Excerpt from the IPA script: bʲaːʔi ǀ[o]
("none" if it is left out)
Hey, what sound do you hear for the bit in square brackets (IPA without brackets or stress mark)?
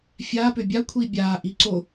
o